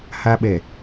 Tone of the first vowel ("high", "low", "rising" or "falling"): high